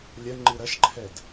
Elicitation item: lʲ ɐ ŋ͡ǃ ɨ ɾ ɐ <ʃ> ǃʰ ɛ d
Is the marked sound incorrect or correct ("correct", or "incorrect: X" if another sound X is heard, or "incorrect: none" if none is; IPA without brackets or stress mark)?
correct